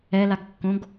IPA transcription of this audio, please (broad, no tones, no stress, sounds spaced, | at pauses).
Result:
ɛ l a ɡ kː õ ɡ